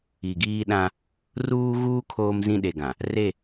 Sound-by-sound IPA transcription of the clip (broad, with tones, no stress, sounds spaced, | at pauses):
i˨ ɡ iː˦ ɗ ã˦ | r uː˦ ɣ uː˦ kʰ oː˦ m z ĩ˦ ɗ e˨ ɡ ã˨ | r e˦˨